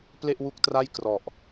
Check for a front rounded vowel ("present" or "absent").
absent